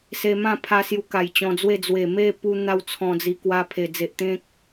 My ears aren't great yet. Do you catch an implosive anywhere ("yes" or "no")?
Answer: no